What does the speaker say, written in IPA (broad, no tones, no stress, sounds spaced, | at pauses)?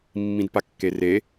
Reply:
mː ĩ d p a kː e r e